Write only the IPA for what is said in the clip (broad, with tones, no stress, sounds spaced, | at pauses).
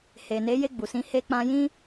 h e˨ n e˨˦ j e˦˨ ɡ͡b u˨ s ĩ˧ h e˧ k͡p ã˧ j ĩ˦